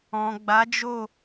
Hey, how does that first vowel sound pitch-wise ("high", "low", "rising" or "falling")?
low